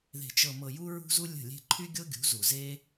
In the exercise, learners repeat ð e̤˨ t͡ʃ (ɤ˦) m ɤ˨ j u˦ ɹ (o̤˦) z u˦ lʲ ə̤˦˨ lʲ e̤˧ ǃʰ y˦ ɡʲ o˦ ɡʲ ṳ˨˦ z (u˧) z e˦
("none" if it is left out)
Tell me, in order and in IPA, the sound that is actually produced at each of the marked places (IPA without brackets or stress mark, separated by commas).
ɤ˨, ṳ˦, u˨